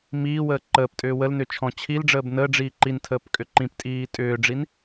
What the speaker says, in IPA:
m iː w əː ǃ əː p tʼ ʏː w ə l n ʏ t͡ʃʰ ɔ̃ t͡ɕʰ i l ɖ͡ʐ əː b n əː ɖ͡ʐ iː ǃ i n tʰ əː p kʼ ʏ ǃ ĩ p tʼ iː tʼ ʏː ɖ͡ʐ i n

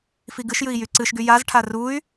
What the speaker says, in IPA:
f i ɡ ɨ ʃ j ɨ i̯ j y ǀ ɨ ʃ ɡ y j a z ʈʰ a r u y̯

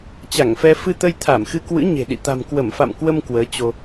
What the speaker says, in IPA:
t͡ɕ a˧˩ ŋ f ɛ˧ f ɨ˧ t̪ ə˧ j t̪ʰ a˧˩ m x ɨ˧ k w ɨ̰˧˥ ɲ e̤˨˩ ɗ ḭ˧˨ t̪ a̤˨˩ m k w ə˧˩ m f a̰˧˨ m k w ə˧ m k w əː˨˦ t͡ɕ o˧

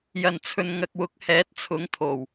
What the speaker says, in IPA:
j ɐ˨˩ n t͡sʰ ɵ˨ n ŋ ɐ˨ k̚ w ʊ˨˥ k̚ h ɛː˨˥ t̚ t͡sʰ ʊ˨˥ ŋ t̪ʰ o˨˩ w

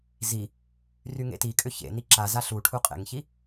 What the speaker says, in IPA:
z i | r y ŋ ḛ t i kʼ ʏ ç ḛ n i ǁ a z a ɬ u ʈʰ u qʼ ḛ ŋ ç i

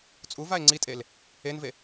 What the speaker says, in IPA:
t͡sʼ u v a e̯ ŋ͡ǀ i tʼ e l | e n v e

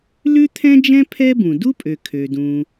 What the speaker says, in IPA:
l ʉ˥ t̪ʰ ɛ̃˥ d͡ʒ ɛ̃˥ pʰ ɛ˥ b ũ˩ d u˥ pʼ ø˩ kʰ ø˩ d ũ˩

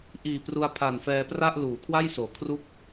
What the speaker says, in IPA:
ʔ iː˨˩ p r u˧ a̯ pʰ a˨˩ n f ɛː˧ p r a˥˩ ʔ l uː˩˦ kʰ w a˥˩ j s oː˩˦ kʰ r u˥˩ k̚

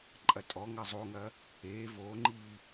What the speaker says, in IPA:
ǃʼ ɐ tʼ ɔ ŋ ɐ zˤ o ŋ ɐ | eː v oː ŋ͡ǃ iː

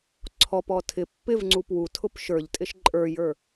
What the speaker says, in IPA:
ǀʰ ɔ p ɔ tʰ ɪ pː ɪ v ŋ͡ǀ u p w u tʰ ʊ p ʃ ə˞ ʎ tʼ ɪ ʃ ǃʼ ə˞ j ə˞

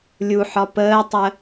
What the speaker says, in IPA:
lʲ u ħ ɒ p əː tˤ ə

